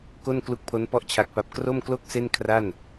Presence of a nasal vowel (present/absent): absent